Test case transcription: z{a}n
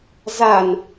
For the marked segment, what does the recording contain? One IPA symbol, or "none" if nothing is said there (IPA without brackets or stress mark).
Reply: a